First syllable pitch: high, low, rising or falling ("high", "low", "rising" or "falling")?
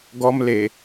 high